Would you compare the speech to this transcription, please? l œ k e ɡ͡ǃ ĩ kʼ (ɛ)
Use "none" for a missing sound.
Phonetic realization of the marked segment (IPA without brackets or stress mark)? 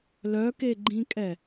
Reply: ɛ